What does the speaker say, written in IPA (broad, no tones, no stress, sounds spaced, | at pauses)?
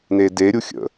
n e d e ɾʲ u xʲ ə̰